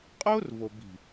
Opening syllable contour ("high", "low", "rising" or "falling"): high